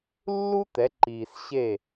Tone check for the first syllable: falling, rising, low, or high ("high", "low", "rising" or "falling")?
high